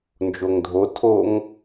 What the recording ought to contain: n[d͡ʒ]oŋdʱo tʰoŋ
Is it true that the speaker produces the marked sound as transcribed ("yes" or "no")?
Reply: yes